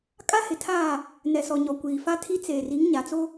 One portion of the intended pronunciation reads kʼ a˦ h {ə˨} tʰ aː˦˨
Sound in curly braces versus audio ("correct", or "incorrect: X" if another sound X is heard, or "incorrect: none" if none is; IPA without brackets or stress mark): incorrect: ɪ˨